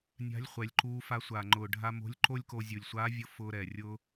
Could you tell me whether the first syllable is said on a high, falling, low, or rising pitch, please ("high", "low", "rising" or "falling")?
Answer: rising